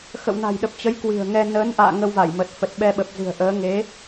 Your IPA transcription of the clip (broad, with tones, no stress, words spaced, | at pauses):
xə̰˧˨wna̤˨˩jɗə˨˩p̚ t͡ɕə˨˦j kwɨ̤˨˩ə̯ŋɛ˧ nəː˨˦nʔa̰ː˧˨ ŋə˧wva˧˩jmə˨˩t̚ fə˨˩t̚ɓɛ˧ɓə˨˩p̚ zɨ̤˨˩ə̯ʔəː˨˦ ŋe˨˦